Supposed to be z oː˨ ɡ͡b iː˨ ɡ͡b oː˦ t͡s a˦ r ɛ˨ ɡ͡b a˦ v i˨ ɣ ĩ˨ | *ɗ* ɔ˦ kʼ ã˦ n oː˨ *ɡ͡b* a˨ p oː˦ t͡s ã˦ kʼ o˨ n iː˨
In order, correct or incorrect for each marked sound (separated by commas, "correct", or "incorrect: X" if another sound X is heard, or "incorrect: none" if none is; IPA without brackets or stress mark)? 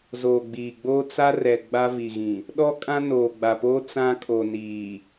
correct, correct